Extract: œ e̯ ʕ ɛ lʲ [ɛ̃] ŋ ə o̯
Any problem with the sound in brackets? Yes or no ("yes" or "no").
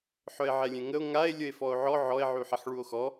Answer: no